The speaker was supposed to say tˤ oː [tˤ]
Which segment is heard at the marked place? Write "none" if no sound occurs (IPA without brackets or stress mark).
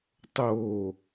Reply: none